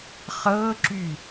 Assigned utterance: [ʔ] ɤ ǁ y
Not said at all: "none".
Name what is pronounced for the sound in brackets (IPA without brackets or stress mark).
χ